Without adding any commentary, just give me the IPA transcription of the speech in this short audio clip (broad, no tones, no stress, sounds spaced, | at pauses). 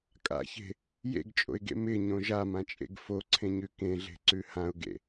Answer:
kʼ a̰ ç e̤ | j ḛ ɡ t͡ʃʼ o̰ ɪ̯ ɡ ḛ m ɪ ɲ õ ʒ a m ã t͡ʃʼ ḛ ɡ f o ǀʰ ẽ ɲ ʉ k ẽ ɮ e̤ ǀ ʉ h ã ʊ̯ ɡ ḛ